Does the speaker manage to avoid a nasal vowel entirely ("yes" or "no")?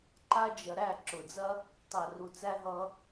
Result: yes